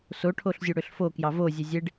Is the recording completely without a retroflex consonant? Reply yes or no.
no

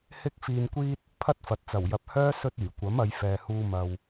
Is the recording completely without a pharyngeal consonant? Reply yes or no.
yes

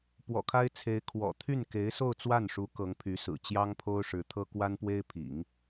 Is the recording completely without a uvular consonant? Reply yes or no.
yes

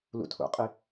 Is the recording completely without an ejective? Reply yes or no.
no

